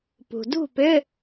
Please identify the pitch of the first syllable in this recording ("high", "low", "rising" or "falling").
low